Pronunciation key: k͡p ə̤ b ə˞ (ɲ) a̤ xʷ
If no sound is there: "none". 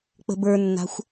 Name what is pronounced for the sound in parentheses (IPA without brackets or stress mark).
nː